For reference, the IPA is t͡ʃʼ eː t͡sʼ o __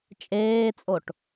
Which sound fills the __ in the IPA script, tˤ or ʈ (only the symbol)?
ʈ